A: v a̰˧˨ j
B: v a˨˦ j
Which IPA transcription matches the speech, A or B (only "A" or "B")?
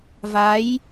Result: B